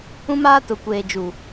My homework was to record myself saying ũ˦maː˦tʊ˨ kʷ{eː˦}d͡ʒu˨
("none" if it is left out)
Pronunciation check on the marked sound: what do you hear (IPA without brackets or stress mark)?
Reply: eː˨